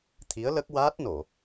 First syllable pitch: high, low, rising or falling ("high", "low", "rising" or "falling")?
rising